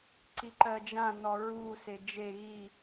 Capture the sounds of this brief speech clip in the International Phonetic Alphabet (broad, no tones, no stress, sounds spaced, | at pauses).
ǀ i ǃ ɜ d͡ʒ ã n ɔ ɹ u s e d͡ʒ e ɣ i